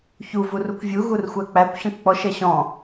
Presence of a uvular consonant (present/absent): absent